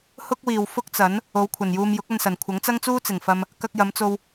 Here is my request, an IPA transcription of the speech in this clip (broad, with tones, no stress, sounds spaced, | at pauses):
h ʊ˥ k̚ w iː˨ w f ʊ˥ k̚ t͡s ɐ˨˥ n | o˨˧ w kʷʰ ɐ˨˩ n j uː˧ m j ʊ˨˥ k̚ ɐ˧ n s ɐ˨˩ n kʷʰ ɐ˨˥ ŋ t͡s ɐ˥ ŋ t͡s uː˥ t͡s ɪ˨˩ ŋ f ɐ˧ m | k ɐ˧ k̚ j ɐ˨˧ m t͡s o˧ w